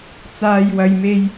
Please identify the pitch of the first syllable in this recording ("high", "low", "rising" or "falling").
high